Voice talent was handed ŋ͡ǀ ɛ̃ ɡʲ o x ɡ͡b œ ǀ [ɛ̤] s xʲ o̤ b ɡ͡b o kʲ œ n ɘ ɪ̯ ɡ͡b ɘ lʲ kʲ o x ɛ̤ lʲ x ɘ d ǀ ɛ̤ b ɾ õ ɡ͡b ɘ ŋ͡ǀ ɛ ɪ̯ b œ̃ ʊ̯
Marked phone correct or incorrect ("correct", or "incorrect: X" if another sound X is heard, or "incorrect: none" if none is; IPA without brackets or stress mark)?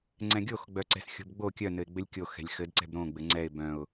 correct